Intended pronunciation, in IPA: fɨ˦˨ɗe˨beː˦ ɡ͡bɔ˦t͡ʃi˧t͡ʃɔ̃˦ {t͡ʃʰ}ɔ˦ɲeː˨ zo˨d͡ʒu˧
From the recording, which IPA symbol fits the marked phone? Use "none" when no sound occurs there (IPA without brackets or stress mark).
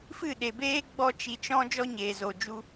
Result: d͡ʒ